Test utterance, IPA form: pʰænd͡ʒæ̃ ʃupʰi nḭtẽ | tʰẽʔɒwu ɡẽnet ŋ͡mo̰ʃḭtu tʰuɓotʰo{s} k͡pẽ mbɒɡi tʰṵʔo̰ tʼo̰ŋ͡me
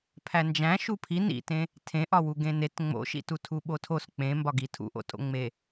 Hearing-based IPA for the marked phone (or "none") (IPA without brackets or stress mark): s